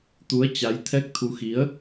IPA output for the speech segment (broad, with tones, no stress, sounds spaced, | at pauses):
t̪ u˨˦ ə̯ t͡ɕ a˨˦ j t̪ʰ ɛ˦˥ k̚ t̪ʰ u˨˦ x i˨˦ ə̯